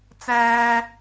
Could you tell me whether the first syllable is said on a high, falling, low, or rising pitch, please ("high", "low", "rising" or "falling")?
high